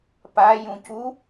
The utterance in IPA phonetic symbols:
pa jũcu

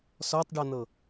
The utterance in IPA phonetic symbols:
sɔtˤɖɤn̪ɤ

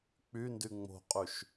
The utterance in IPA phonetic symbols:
k͡pyndy ŋ͡mo̤qʼyʃ

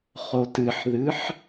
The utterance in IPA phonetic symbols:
χotɨħðɨħ

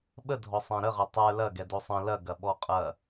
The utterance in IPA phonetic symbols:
ɓədʱɔ sˤɛ̃ɾəʁɐ tˤə˞ lɐɡɛ dosˤɐ̃ lɐɡɐɓɔ qʼɐ

